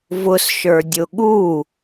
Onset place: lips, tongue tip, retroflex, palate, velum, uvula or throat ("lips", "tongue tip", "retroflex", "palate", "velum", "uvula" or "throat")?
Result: lips